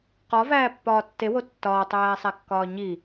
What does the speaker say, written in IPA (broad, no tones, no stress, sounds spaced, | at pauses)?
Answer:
q ɒ v æː pː ɒː tː e w o tː ɒː tˤ æː sˤ æ kː ɒː ɲ i